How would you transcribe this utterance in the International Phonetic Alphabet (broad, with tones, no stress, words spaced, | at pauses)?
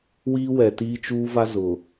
wiː˦wɛ˨tiː˦t͡ʃuː˦ va˦ zʊ˨